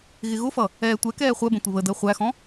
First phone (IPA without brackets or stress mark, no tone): ɣ